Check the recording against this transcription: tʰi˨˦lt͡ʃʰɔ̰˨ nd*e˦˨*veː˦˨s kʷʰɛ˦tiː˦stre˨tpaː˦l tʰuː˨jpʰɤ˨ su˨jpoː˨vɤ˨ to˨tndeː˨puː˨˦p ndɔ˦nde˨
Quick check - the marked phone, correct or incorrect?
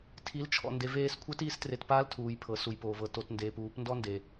incorrect